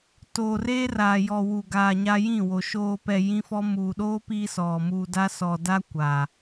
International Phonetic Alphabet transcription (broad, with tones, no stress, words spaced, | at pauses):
toː˨reː˦raː˨jɔ˨ wu˨ɡaː˨ ɲa˦jĩ˦˨wo˨ ʃoː˨pɛ˨ jĩ˦fɔ˦ muː˨ɗoː˦piː˦ sɔ˨ muː˨da˦sɔ˨ da˦kʷa˨